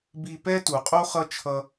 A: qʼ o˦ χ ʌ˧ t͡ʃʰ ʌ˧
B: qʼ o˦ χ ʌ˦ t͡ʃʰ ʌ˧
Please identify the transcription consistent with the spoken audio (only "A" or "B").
B